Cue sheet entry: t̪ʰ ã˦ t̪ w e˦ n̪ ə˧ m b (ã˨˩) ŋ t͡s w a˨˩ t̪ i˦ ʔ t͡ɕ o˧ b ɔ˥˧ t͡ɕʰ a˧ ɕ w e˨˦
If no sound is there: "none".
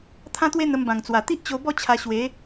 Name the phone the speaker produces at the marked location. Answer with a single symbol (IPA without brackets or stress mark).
ã˨˩